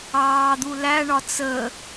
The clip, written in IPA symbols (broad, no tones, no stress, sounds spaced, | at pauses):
ɑː d̪ u l æ ɳ ɒ t͡s ə